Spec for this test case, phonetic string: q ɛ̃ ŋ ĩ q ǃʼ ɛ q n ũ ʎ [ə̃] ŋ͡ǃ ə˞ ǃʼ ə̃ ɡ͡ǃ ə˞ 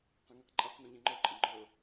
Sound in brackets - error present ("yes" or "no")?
yes